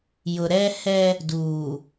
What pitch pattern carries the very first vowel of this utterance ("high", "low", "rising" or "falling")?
low